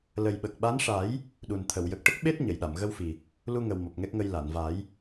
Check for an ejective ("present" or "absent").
absent